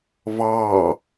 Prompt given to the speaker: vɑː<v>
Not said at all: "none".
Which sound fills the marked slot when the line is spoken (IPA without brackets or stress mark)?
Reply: none